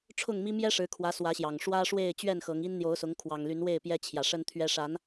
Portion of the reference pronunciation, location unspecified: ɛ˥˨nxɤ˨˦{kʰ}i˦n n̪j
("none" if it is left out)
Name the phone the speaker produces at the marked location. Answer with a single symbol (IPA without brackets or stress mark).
ŋ